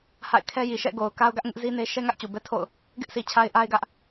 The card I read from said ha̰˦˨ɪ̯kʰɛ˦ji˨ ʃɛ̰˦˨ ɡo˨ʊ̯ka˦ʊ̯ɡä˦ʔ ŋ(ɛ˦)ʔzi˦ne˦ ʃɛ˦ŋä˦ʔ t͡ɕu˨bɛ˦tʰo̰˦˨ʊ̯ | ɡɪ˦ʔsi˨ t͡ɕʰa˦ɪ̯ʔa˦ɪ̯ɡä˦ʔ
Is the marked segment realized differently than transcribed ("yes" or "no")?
yes